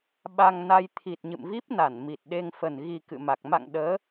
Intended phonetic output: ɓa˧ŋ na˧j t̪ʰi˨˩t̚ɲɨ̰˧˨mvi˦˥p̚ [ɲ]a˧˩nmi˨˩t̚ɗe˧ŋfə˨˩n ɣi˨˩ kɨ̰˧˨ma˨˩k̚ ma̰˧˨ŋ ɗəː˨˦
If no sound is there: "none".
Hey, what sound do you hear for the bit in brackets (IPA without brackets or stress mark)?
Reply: n